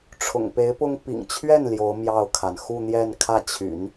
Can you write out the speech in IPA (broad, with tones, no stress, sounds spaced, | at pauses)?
ʈ͡ʂʰ ʊ̰˨˩ ŋ p e˧˥ ɪ̯ p ʊ˥ ŋ p ḭ˨˩ ŋ t͡ɕʰ ɥ ɛ˥˩ n l j o˧˥ ʊ̯ m j ɑ˥˩ ʊ̯ kʰ a˩ n x u˥˧ n̪ j ɛ˥˧ n kʰ ä˥˩ t͡ɕʰ y̰˨˩˦ n